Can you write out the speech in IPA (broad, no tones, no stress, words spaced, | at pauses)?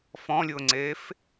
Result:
fɔ̃lʲʊːŋ͡ǀeːf